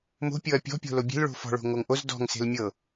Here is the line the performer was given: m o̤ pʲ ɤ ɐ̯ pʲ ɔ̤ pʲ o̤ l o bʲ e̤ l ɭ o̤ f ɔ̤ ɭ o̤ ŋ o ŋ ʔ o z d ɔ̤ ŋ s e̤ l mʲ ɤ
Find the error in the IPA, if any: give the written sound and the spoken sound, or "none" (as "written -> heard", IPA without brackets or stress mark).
none